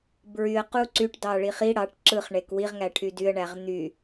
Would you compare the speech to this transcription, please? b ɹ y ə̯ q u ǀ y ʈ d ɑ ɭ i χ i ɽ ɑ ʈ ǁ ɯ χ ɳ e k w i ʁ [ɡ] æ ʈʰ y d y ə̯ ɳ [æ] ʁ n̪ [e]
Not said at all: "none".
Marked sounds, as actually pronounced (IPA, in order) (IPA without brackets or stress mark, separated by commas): ŋ, æ, y